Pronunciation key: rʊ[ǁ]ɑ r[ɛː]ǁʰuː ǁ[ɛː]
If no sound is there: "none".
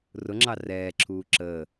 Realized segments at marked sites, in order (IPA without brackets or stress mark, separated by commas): ŋ͡ǁ, ɛː, əː